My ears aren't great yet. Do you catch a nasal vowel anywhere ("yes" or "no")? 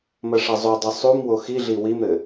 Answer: no